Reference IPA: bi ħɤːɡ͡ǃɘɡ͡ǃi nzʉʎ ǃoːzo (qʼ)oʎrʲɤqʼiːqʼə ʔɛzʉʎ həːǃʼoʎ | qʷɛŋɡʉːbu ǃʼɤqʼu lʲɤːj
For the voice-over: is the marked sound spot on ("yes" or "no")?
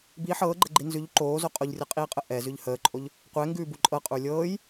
yes